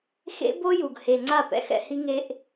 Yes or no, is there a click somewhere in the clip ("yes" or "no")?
yes